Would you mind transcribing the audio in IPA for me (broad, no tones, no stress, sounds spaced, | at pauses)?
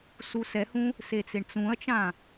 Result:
s u s ɛ h ũ | s e t͡s e ɳ t͡s ũ ɐ̯ t͡ʃ ã